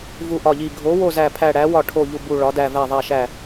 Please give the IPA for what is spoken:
v u˦˨ ʔ ɒ˦˨ ʎ i˦˨ ɡʱ o˨˥ w o˦˨ z æ˦˨ pʰ æ˦˨ ɽ æ˨˥ w ɒ˦˨ ʈʰ o˦˨ ʎ u˦˨ b u˦˨ ɭ ɒ˨˥ d æ˦˨ v æ˦˨ ðˤ æ˦˨ ʃ æ˦˨

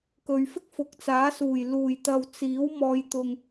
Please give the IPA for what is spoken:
k ɵ˨ ɥ f ɪ˥ k̚ f ʊ˨ k̚ t͡s aː˨˥ s uː˨˩ j l uː˨˩ j t̪ ɐ˨ w t͡s iː˨˥ w m ɔː˨˧ j t̪ ʊ˨ ŋ

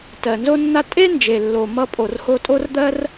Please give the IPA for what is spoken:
t ɜ˩ n z o˥ nː a˥ tʼ e˥ n d͡ʒ e˩ lː o˩ m ʌ˥ pʼ o˩ r h o˥ tʼ o˥ r d̪ ɜ˥ r

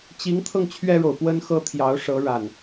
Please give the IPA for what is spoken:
t͡ɕ i˨˦ ŋ t̪ʰ ɤ˧ ŋ t͡ɕʰ ɥ ɛ˦ ɻ o˨ ʊ̯ p w ə˦ n x ɤ˦ t̪ʰ j ɑ˨˦ ʊ̯ ʂ ɤ˨˦ ɻ a˨˩ n

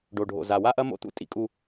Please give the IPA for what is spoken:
ɖ o˨ ɖʱ o̰˨ z a˨ w a˦ ʔ ɐ˦ m o̰˦ t̪ ṵ˦ tʼ ḭ˨ kʼ u˨

